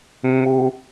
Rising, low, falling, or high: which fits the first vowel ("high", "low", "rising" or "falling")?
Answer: high